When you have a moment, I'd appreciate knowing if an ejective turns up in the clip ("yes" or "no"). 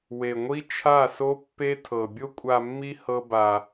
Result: yes